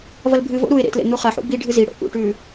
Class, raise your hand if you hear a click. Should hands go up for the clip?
no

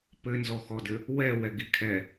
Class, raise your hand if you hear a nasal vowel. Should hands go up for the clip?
no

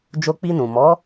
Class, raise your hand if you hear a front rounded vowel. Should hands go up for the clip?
no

